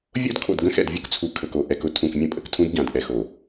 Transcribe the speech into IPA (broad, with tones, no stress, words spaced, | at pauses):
vʲo̰˦dkʰo̰˨d ɡə̃˦xɛ̰˨d vʲʊ˦kt͡sʰu˨ kʰə˨k o˨ ʔɛ˨kʊ˦ tʰũ˨kmʲə̃˦ pʼə̰˨ktʰũ˦dɟã˨d ʔɛ˨xo˨